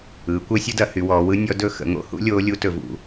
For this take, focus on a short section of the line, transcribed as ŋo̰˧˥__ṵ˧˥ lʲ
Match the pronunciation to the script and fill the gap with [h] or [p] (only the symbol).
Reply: h